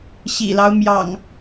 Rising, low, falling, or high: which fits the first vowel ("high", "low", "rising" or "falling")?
low